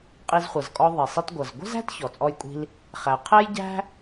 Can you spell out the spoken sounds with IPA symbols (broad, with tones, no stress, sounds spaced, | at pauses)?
qʼ i˧ z χʷ ʌ˩ z kʼ ɔ˧ ðˤ i˩ sˤ i˧ t ɡʷ ʌ˩ z ɡʷ ə̤˥ z æ̤˥ t ç ɔ˩ t͡sʼ ɔ˧ j kʷʼ i̤˧ l | χ æ˩ qʰ ɛ˥ j ɟ æ̤˥